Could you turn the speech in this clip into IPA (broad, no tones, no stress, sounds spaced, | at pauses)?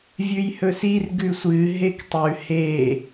vʲ ʉ j h ɵ s i r ɡ ʉ sʷ ɨ ɦ e k tˤ ʉ h e